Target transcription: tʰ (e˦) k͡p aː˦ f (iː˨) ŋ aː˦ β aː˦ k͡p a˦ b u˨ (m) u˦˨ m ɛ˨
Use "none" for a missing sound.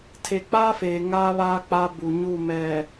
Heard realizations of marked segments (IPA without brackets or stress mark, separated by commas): e˨, eː˨, ɲ